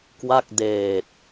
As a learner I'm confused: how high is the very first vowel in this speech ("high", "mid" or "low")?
low